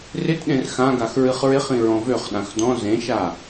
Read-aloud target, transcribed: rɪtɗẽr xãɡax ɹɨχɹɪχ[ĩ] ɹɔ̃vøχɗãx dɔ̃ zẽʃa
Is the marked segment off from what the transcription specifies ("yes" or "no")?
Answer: no